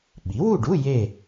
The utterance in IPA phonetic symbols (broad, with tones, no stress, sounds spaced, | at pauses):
ɓ i˩˥ w u˥˨ ɖ u˧˥˧ j e˥˨